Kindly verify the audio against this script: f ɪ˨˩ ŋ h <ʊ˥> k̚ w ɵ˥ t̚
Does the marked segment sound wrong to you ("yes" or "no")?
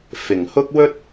no